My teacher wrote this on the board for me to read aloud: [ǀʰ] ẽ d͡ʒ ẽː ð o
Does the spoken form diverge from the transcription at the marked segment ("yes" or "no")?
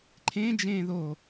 yes